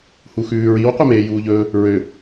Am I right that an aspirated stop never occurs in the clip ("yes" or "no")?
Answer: yes